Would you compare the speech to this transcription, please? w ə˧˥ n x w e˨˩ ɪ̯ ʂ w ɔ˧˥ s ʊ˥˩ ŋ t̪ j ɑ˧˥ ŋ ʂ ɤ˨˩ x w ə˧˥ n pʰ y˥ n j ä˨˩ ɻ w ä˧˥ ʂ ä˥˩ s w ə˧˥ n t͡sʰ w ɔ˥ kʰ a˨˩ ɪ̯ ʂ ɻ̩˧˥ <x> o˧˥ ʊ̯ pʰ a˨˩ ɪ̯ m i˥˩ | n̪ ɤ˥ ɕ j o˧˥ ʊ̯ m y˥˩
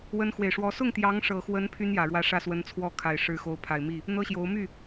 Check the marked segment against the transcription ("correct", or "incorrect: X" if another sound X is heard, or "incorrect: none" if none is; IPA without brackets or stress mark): correct